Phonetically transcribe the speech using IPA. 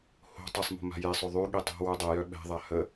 h o̤ tˤ ə sˤ m o̤ m a̤ j e sˤ ø ðˤ y ɠ i tˤ o̤ w u dˤ ɛ j œ ɓ ɛ̤ ðˤ a h ə

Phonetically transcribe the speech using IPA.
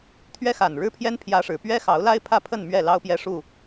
t̪ʰ ɥ ɛ˦ x a˨˩ n ɻ ɻ̩˦ pʰ j ɛ˦ n pʰ j ä˦ ʂ ɻ̩˨˦ p ɥ ɛ˦ x ɑ˨˦ ʊ̯ l a˦ ɪ̯ pʰ ä˥˨ pʰ ə˥˨ n m ɥ ɛ˥˨ l ɑ˦ ʊ̯ p j ɛ˦ ʂ u˥˨

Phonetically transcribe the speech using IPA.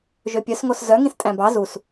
ʒ ø pʲ œ s ŋ o s z œ ŋ ĩ s tʼ æ̃ b ɑ z u s

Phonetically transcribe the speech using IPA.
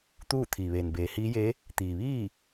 t̪ uː˥˨ t̪ʰ iː˩ ʋ eː˩ n b eː˩˧ h iː˧˥ j e˧˥ | t̪ iː˩ ʋ iː˥˨

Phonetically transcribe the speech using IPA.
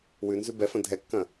w ʉ n z ʉ b ɛ f ɐ̃ dʱ ɛ kː ɐ̃

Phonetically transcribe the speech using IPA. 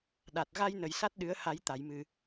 ɗ a˨˩ t̚ ɣ a˧ j n ə˨˩ j s a˦˥ t̚ ɗ ɨ˨˩˦ ə̯ h a˨˩˦ j t̪ a˨˩˨ j m ɨ˨˩

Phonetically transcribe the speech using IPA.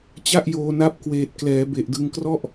t͡ɕ a˥˩ ʔ j oː˧ n a˦˥ p̚ k w eː˨˩ t̚ k l ɛː˩˦ b e˨˩ ʔ d ɯ˧ ŋ k r ɔ˥˩ ʔ

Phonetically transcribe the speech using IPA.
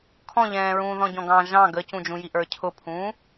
kʰ ɔ̃ ʎ ɛ̃ː ɹ ũː ð ɔ̃ ɟ ɔ̃ ɡ ɑ̃ ʒ ɑ̃ ɡ ə c ũ d͡ʒ ũ j i ʔ ə˞ cʰ ʊ pʰ ũː

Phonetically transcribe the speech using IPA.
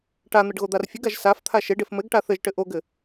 ʈ a n̪ ɘ ɖ ɣ o d̪ a r fʲ ɘ ɡ a ʒ s a f t̪ʰ a ʃ e ɖ e f m ɘ ɡ ʈ a θ ɘ ʒ ʈ ɘ ʔ o ɡ ɘ

